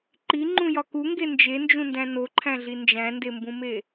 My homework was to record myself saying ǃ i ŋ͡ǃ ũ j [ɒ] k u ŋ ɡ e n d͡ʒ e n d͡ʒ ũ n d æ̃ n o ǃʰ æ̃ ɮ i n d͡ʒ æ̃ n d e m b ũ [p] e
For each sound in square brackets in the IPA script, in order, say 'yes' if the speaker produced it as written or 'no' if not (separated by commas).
yes, no